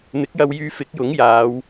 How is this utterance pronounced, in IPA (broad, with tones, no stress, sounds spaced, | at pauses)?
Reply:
n̪ ɪ˨˥ k̚ j ɐ˧ w j yː˧ f ɪ˨˥ k̚ j ʊ˨˥ ŋ j aː˨˧ w